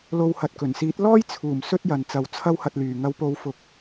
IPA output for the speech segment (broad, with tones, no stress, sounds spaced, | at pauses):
l o˧ w h ɐ˨ t̚ k ɵ˨˩ n s iː˨˥ t̚ l ɔː˥ j t͡sʰ uː˨˩ m s ɵ˧ t̚ j ɐ˨ n t͡s ɐ˨˧ w t͡sʰ ɐ˥ w h ɐ˧ t̚ l yː˨ ŋ ɐ˨˧ w p o˨˧ w f ʊ˨ k̚